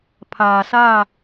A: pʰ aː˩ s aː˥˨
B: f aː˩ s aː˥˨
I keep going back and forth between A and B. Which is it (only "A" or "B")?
A